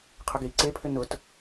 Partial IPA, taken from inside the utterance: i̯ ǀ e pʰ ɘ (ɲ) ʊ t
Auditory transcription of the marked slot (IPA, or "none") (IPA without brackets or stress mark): n